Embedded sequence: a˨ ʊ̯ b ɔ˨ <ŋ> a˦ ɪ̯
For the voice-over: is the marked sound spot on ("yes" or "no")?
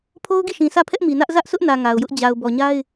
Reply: no